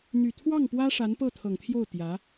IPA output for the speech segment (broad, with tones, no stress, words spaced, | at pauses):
n̪y˨˩t̪ʰwɑ˥˩ŋpwä˥ ʂa˧˥npɤ˥˩t̪ʰɤ˨˩ŋt̪ʰjo˥˩ʊ̯ t̪jä˧˥